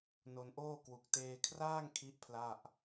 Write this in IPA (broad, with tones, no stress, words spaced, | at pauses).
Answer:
no˧nʔoː˥˩ kwu˨˩k̚teː˧kʰraː˥˩ŋ kʰi˥˩ʔpʰla˥˩ʔ